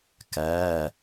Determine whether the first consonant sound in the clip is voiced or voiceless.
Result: voiceless